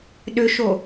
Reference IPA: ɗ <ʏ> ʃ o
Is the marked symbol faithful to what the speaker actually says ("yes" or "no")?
yes